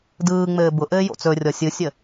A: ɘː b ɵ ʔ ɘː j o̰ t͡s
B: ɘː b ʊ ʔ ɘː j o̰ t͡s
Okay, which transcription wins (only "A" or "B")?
B